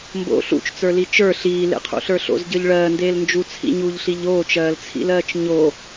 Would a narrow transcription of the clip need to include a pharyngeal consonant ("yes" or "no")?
no